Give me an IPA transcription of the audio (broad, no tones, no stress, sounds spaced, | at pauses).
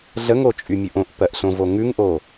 ɮ ə ŋ o t͡ʃʼ y mʲ ʉ ʔ õ ʔ p ɜ ʔ ɬ õ v o ŋ ʉ ŋ ʔ o